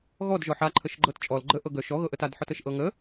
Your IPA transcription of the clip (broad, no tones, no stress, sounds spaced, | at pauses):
ɣ ɔ d ʒ ɔ ħ a ǃʰ ə ʃ ɡ͡ǃ ɤ t t͡ʃʼ ɔ l ɡ͡ǃ ə ʔ ɤ ɡ œ ʃ ɔ ɣ ɤ ʔ ə t a d ħ ɔ t ə ʃ ʔ ɤ ŋ ə